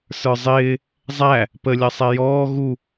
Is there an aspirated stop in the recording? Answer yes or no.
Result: no